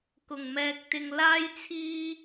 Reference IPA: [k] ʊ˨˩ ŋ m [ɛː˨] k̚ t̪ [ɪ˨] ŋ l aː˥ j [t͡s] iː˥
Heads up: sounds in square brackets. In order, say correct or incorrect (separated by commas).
correct, correct, correct, incorrect